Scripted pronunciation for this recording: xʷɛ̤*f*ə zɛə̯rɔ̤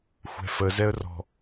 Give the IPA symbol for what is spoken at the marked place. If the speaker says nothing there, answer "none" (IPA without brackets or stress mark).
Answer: f